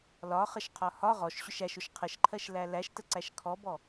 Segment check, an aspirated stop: present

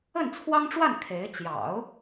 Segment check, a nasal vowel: absent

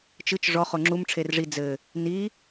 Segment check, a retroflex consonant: present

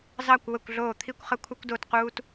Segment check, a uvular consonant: present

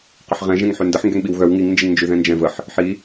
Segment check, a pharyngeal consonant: present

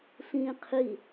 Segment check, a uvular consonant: present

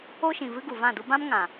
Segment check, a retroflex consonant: absent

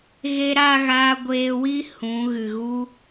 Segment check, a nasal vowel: present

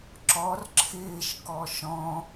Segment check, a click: present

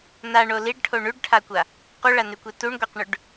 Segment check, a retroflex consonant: present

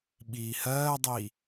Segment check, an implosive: present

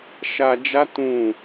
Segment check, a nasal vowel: present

